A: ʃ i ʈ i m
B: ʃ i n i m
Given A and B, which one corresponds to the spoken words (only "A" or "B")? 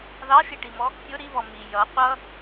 A